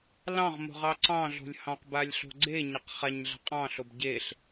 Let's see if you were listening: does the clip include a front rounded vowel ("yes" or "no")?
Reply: no